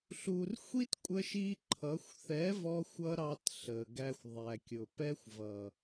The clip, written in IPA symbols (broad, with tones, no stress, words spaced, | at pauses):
ɬu˨rxʷi˦t kʷʼə˦ʃi˦ ǃʰʌ˨˦xʷ θɛ˨˦vɔ˧xʷʌ˧ ɾɑ˧t ɬə˨ ɡæ˧xʷðˤæ˨kʲʊ˨ pɛ˦xʷvʌ˨